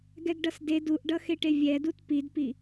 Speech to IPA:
ɡ ɛ ɡ ɖ ʌ s d e d u ʔ ɖ ʌ x e ʈ e vʲ ɛ d u t p i d p i

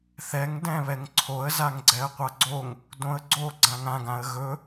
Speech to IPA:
θ ɛ ŋ d ɛ̃ β ɛ ŋ ǀʰ o ə̯ z a ŋ ɡ͡ǀ ɛ ə̯ qʷ a ɡ͡ǀ o ŋ | d õ ə̯ ɡ͡ǀ o ɡ͡ǀ ã ŋ ã ɡ ã ə̯ ɣ ɵ

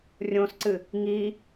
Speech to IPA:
rʲ õ s ǀ ɨ | ŋ iː

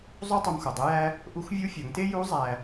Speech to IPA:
zˤ u˥ tˤ u˧ m x o˩ dˤ e˧˥ j æ˥ | ʔ u˧˥ x vʲ u˧˥ fʲ ɒ˩˧ ŋ t e˥ j u˧˥ zˤ æ˧

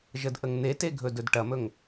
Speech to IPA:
ʒ ə d ʔ ə ŋ n̪ e t e ɡʱ ɵ d ɵ d ʈ ɐ m ɵ ŋ

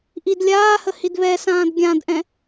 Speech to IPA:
ʔ i d lʲ aː h ə h i d β ɛ s ãː d ɡʲ ã d ʔ ɛ̃

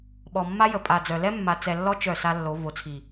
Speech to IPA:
ɓ ɔ˨ mː a˦ j ə˨ pʼ a˨ d͡z œ˨ l ɛ˦ mː a˨ t͡s ɛ˨ lː ɔ˦ t͡ʃ œ˦˨ s a˦ lː o˨˦ v o˨ t͡sʰ i˨

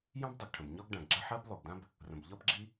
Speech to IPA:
j ɑ̃˥ b dˤ ʉ˩ ɡ ʈʰ ə̃˩ b ɲ ɒ˥ ɡ ɖ ã˩ ɡ ɡ͡ǁ ə˥ ħ ɜ˥ b lˠ ʉ˩ ɡ d ã˥ b | r ə̃˩ b ʎ ɒ˥ b ɡ͡ǁ i˥

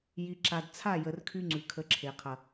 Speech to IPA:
j i˨ ǁ a˨ d t͡sʰ a˦˨ j ə˨ r kʰ y˧ ŋ͡ǀ ʉ˨ kʰ ə˨˦ ǁʰ e˨ qʰ ɐ˨

